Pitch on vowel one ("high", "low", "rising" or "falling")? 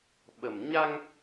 low